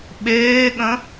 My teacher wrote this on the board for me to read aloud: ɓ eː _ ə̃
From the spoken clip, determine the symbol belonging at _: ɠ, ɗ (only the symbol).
ɠ